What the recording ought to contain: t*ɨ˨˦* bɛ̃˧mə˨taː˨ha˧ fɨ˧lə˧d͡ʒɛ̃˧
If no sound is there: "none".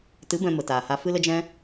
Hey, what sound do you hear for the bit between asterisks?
ɨ˨˦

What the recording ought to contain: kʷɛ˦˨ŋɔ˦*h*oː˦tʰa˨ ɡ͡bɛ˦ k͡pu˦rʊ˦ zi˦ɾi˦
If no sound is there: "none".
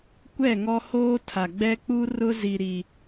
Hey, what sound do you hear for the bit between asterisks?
h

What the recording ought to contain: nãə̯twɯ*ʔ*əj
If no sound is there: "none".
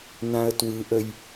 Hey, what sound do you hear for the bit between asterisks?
ʔ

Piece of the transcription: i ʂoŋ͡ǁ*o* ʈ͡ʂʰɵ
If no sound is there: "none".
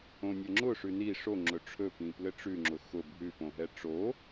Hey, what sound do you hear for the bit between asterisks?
ɵ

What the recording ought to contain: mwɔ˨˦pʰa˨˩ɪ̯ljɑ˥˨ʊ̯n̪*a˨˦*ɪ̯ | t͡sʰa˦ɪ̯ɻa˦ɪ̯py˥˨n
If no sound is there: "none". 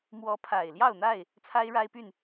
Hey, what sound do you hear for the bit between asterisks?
a˥˨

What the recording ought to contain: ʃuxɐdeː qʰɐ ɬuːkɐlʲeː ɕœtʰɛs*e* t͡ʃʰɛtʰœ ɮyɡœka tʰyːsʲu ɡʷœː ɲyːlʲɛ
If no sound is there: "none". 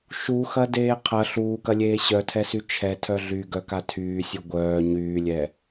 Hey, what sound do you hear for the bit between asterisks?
y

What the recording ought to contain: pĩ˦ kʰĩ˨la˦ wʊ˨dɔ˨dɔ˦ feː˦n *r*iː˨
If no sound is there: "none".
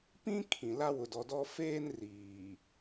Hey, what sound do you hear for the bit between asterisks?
r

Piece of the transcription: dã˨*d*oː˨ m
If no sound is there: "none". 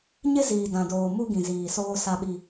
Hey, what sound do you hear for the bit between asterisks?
d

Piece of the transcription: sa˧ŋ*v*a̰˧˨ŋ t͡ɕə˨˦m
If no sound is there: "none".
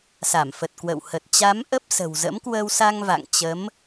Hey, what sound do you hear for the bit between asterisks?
v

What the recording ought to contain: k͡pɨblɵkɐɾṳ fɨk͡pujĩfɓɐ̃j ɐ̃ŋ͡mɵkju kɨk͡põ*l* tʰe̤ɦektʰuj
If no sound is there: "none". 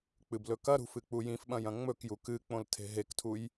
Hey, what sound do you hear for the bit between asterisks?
l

